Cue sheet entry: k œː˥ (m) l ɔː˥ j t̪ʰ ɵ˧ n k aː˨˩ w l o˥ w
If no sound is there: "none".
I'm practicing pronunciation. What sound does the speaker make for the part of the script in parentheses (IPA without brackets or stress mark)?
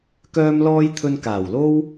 m